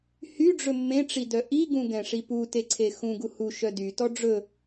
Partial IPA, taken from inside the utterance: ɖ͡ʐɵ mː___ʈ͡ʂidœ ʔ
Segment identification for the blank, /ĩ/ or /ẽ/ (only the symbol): ẽ